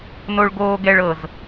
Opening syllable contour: high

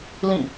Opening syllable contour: falling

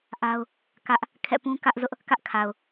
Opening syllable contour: high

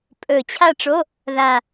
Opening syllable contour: low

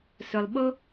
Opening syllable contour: low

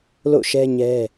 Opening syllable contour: falling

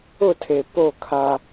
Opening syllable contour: falling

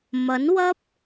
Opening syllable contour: rising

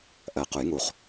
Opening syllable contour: low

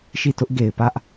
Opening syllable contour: falling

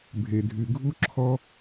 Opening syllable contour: low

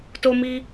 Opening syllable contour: high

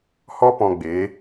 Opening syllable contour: high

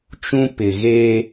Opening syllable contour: high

